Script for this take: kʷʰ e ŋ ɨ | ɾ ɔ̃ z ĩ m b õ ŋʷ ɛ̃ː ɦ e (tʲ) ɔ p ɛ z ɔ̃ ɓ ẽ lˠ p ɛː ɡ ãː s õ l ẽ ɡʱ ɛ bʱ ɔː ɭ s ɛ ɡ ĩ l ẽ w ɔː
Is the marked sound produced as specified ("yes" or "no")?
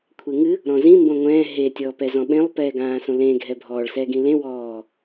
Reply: yes